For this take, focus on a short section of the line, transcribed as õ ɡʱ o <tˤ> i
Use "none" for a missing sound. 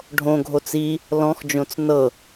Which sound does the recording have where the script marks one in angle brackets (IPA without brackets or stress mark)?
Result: t͡s